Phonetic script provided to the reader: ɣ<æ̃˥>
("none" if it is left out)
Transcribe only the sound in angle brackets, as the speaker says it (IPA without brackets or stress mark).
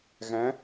æ̃˩˥